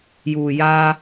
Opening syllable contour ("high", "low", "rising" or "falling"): low